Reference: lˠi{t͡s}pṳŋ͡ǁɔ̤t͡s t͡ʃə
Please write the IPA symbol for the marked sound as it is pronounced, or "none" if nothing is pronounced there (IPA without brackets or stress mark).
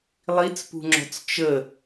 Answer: t͡s